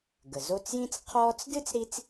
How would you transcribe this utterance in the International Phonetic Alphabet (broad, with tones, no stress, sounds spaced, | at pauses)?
ɡ ə˩ z o˦ t͡s j ĩ˥ t͡s qʰ ɔː˦ t͡s d ɨ˥ t͡s ɾ i˥ t͡s